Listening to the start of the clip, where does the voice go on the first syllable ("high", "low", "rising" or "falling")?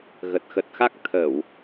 low